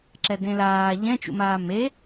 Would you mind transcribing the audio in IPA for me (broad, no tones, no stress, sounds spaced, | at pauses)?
ǁ ɛ d ẽ l aː ʎ ɛ̃ t͡ʃ ṵ m aː m e